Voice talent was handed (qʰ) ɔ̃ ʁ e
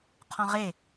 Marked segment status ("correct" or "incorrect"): correct